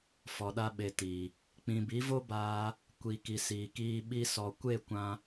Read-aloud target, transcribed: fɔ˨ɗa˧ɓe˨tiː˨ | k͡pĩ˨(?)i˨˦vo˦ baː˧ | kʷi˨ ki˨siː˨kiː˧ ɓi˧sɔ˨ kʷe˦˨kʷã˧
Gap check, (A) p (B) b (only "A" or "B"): B